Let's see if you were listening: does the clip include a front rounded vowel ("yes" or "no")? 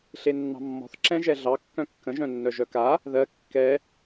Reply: yes